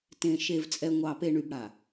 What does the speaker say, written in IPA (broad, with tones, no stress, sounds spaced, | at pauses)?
t ẽ˨ ʃ e˨ v t͡sʼ ɛ˨ ŋʷ ɑ˨ p e˨ ɳ y˨ b ɽ a˨